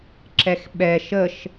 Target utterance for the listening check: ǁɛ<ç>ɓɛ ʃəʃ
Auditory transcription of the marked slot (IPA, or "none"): x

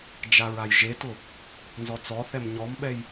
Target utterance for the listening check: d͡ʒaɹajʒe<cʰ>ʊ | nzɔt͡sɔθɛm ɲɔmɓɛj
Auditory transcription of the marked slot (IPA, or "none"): t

